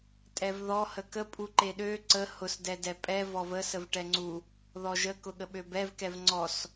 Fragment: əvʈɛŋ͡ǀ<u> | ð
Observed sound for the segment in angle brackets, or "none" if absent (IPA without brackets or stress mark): u